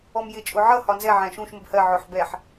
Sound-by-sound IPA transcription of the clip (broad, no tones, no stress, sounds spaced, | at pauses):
ɔ m j ɪ t͡ʃʼ ʊ ʕ ʌ h ɒ n z ɛ ʕ æ̃ ʃ ũ ʃ m ə b h ɜ ʕ ʊ ħ b ɛ ħ